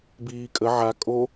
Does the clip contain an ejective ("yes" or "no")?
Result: yes